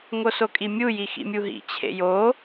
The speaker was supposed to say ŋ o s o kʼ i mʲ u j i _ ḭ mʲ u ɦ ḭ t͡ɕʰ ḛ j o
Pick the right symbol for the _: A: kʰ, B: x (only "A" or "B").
B